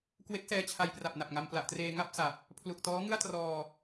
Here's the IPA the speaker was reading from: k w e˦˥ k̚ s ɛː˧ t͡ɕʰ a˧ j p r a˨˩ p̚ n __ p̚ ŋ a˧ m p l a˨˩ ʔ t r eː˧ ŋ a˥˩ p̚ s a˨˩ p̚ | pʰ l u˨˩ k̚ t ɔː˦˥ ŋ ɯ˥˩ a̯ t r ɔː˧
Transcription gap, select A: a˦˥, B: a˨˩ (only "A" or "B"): B